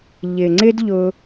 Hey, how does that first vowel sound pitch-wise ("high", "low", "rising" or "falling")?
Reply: low